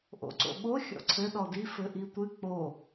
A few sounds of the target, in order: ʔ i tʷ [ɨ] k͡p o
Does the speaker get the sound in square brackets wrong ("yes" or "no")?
no